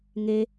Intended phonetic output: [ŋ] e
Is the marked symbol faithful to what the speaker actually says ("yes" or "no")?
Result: yes